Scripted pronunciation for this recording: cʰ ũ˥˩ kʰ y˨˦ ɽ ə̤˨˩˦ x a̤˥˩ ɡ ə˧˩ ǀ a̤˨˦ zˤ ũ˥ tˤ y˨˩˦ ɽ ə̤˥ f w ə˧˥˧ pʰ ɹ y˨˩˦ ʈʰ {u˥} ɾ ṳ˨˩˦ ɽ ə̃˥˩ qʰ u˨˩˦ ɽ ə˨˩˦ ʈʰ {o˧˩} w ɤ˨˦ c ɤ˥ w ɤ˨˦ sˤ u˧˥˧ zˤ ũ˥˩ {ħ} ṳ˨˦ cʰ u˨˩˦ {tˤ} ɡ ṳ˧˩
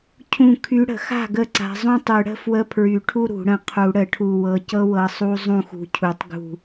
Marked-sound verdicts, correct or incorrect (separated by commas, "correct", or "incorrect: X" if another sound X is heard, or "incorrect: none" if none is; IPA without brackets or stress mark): correct, incorrect: u˧˩, incorrect: x, correct